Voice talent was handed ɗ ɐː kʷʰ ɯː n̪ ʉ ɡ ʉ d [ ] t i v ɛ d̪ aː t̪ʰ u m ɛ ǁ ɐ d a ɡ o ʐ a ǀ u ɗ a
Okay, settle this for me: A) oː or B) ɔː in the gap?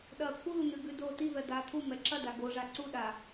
A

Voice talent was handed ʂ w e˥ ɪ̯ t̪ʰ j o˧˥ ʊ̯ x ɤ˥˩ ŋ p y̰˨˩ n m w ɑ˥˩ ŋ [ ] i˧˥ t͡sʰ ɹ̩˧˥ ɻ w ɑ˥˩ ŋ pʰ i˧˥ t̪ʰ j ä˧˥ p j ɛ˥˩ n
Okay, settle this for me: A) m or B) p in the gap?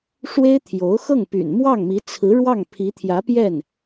A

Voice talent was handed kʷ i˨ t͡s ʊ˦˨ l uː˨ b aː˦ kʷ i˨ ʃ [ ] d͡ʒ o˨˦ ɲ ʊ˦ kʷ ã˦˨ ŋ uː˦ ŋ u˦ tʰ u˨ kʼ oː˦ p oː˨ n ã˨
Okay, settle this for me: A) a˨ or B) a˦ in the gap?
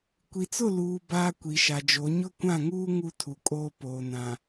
A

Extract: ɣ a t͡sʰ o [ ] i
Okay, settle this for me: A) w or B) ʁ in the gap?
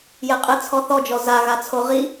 B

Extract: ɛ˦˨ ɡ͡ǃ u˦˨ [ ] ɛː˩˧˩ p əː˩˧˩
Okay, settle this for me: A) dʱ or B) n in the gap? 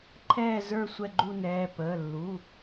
B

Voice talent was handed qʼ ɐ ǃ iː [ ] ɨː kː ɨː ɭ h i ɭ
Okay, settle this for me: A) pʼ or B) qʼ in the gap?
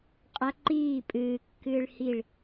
A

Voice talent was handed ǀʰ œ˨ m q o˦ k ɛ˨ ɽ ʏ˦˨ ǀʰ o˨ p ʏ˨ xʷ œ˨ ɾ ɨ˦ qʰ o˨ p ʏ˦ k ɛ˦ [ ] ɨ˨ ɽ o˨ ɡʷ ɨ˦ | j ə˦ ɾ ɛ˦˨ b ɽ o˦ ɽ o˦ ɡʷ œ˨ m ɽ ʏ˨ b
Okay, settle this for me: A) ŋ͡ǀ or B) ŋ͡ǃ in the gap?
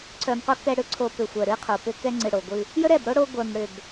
A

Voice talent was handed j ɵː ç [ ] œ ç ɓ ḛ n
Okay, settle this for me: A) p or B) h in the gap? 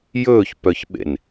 A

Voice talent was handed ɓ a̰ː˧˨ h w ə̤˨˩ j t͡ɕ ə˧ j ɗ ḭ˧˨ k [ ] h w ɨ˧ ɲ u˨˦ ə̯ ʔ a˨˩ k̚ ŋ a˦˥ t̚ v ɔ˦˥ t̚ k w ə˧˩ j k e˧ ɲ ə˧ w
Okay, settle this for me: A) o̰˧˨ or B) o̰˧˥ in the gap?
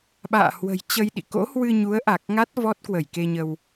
B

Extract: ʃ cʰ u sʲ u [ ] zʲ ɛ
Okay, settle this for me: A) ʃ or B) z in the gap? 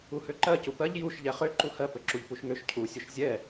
A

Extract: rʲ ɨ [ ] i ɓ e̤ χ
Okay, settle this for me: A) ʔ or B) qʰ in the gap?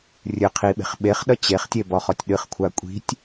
B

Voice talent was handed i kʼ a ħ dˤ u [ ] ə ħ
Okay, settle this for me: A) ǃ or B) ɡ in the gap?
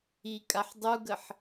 B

